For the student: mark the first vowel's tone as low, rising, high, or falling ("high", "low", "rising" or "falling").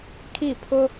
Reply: falling